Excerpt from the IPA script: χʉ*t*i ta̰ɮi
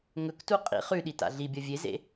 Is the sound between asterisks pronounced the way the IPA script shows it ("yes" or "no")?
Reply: no